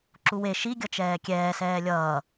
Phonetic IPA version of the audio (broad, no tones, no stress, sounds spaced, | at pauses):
ǁ u w e ʃ i ɡʲ ʌ t͡ʃ ɛː kʲ ɛː s ɛː lʲ ʌː